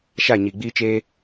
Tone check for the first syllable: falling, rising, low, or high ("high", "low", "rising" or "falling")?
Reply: falling